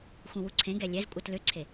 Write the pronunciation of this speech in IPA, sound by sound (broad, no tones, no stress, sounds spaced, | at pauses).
x ũ w u ǀʰ ẽ ɡ ɛ lʲ ɛ z kʷʼ ɤ t l ʏ ǀʰ e